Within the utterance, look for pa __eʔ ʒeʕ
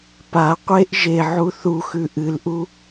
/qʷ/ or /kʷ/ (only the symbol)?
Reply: qʷ